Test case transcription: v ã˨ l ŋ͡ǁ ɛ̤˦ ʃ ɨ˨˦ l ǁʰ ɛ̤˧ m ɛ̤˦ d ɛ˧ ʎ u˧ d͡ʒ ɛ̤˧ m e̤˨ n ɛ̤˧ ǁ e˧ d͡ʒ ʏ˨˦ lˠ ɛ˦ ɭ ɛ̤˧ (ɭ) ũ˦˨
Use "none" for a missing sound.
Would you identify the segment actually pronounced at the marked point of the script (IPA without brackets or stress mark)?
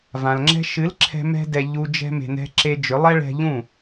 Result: ʎ